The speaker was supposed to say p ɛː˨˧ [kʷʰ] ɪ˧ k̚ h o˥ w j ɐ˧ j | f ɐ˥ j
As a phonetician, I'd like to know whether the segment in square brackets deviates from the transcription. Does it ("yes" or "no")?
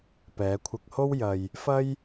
no